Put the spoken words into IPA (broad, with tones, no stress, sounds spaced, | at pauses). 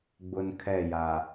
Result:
ɡ͡b ʊ˨ n kʰ ɛ˦˨ j a˨